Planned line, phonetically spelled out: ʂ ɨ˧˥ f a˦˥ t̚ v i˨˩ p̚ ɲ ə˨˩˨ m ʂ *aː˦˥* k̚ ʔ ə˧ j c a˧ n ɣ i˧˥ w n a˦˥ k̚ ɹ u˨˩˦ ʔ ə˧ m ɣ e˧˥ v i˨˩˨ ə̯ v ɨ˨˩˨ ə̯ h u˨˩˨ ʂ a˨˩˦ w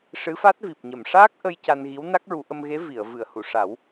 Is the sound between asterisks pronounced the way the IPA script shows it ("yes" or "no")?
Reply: yes